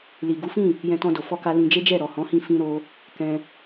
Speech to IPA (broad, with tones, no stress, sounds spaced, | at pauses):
l i˨ ɡ u˨˦ f ĩ˦˨ | j ɛ̃˧ t ɔ̃˧ d o˨ f ɔ˧ k a˧ l ĩ˧ d͡ʒ e˦ d͡ʒ ɛ˦˨ ɾ ɔ˨ h ɔ̃˨˦ h ĩ˧ f ĩ˦ ɾ o˦ | k ɛ̃˧